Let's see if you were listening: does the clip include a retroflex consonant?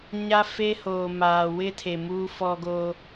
no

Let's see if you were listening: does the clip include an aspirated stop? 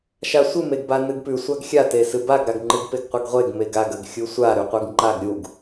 no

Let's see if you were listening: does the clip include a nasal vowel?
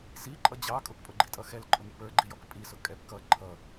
no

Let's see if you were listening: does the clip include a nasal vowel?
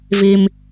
no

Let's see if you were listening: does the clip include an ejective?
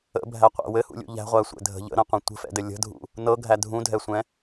no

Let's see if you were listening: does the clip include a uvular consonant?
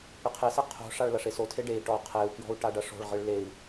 yes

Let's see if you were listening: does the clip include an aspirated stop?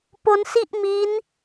no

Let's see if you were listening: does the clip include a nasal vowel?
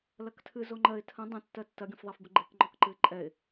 yes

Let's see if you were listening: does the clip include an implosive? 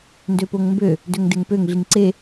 no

